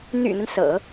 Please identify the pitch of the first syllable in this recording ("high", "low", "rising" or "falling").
low